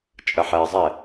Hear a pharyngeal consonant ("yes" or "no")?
yes